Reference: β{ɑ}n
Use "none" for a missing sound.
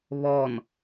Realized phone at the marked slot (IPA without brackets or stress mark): ɔ